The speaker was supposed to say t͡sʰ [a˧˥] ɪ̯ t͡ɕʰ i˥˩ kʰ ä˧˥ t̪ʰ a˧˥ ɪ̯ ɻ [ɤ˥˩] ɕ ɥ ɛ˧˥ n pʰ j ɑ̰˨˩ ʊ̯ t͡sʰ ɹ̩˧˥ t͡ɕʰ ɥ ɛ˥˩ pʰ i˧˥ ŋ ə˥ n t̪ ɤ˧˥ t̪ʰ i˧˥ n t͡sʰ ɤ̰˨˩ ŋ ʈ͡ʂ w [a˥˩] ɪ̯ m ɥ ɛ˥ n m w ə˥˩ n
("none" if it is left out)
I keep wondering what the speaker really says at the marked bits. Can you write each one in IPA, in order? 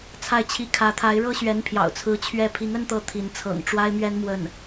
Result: a˥˧, ɤ˥, a˥

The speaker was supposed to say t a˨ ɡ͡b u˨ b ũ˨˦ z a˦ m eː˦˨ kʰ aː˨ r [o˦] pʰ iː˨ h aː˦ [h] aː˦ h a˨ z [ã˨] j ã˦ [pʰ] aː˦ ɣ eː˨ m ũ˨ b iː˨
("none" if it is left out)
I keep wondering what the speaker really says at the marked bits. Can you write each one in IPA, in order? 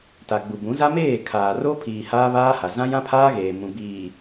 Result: o˦, β, ã˦, pʰ

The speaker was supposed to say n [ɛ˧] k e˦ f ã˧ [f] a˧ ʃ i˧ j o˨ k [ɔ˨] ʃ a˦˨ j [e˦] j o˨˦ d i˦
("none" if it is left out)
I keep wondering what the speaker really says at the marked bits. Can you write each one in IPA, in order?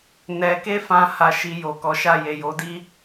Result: ɛ˧, h, ɔ˨˦, e˨

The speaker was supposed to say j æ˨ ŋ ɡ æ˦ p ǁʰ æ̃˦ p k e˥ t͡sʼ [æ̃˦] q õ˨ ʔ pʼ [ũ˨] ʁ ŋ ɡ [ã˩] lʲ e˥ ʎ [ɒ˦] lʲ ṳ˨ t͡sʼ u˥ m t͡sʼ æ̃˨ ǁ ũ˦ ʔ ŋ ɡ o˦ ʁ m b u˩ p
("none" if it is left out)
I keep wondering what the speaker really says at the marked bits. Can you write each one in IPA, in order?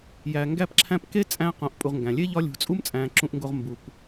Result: æ̃˦, u˨, æ̃˩, ɒ˦

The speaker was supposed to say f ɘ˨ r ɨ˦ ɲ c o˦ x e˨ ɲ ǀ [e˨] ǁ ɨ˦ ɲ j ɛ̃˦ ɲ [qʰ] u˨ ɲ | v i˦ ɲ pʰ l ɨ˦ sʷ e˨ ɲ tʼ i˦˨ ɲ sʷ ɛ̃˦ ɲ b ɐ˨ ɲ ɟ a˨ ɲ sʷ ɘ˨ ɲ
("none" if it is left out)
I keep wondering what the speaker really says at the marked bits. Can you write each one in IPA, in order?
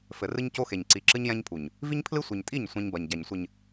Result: i˨, pʰ

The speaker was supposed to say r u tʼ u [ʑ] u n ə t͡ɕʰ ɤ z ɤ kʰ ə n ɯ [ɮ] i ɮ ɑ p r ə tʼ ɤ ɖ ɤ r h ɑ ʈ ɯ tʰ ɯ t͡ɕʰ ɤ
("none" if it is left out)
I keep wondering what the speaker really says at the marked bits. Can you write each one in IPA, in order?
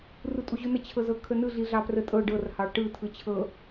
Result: ʑ, ɮ

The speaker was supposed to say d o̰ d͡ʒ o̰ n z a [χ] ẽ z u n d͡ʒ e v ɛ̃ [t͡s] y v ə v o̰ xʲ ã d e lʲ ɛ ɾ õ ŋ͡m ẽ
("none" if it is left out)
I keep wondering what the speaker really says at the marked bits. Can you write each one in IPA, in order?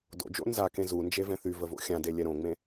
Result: k, θ

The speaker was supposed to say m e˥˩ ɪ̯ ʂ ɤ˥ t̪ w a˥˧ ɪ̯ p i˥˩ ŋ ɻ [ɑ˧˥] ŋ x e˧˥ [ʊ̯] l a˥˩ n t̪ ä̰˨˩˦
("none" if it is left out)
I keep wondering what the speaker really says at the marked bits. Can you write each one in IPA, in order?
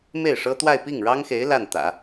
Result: ɑ˥, ɪ̯

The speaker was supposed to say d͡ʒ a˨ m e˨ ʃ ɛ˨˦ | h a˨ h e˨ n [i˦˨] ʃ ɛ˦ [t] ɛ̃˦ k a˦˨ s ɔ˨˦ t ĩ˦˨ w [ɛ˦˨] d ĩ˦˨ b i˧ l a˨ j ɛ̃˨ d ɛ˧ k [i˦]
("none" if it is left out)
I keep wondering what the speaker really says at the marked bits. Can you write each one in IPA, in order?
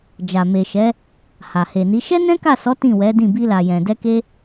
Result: i˨˦, n, ɛ˨˦, e˦

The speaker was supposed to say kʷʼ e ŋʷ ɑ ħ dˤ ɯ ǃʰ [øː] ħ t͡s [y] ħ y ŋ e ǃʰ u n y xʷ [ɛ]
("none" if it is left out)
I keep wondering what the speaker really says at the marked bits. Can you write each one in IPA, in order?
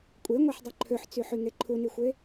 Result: ø, y, e

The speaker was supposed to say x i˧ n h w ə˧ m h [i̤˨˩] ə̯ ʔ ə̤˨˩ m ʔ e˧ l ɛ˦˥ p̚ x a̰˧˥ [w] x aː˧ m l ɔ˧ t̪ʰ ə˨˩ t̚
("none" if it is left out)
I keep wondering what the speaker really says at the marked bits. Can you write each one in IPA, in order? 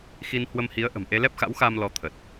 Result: i˨˦, w

